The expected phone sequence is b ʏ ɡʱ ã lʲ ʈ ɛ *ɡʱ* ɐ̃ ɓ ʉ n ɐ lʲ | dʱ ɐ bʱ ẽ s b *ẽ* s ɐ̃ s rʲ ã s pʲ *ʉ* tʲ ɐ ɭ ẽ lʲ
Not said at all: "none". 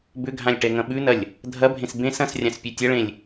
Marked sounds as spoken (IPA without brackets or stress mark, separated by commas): ŋ, ẽ, ʉ